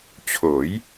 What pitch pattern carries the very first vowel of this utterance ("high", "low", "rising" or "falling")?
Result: rising